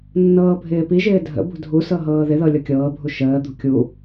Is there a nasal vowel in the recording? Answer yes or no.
no